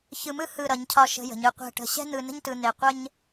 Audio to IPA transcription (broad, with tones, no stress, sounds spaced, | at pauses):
ç ɯ˧ m ɯ˥ h ɯ˧˩ ɾ ʌ˩˧ ɲ cʰ ɒ˧˩ ʃ ə̤˧ j ə̤˩˧ ɲ ɯ˧ qʷ ɛ̤˧˩ ʈ ə̤˧˩ ɕ ɛ̤˥ n̪ ɯ˧ n ə̤˥ ɲ t ɯ˧ n̪ e˧˩ qʷ ə˥ ɲ